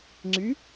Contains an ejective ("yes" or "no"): no